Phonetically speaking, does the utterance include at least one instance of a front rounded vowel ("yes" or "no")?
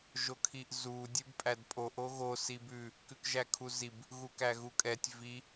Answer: no